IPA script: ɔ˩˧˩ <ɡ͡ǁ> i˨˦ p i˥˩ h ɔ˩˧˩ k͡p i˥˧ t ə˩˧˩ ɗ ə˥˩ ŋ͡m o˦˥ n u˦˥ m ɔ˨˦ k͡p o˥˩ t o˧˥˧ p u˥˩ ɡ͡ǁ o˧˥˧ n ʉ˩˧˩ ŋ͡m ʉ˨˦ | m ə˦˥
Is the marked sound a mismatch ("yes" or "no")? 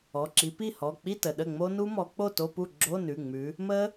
yes